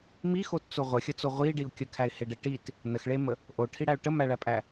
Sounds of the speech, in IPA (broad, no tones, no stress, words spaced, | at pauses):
mixott͡so ʁʷəxʲət͡so ʁʷiɖiʊ̯ kʲəkʰæɪ̯heɖe ʈit | nəxɭemə | ʔoʈʰiɽæʊ̯ ʈəmæɭæpʼæ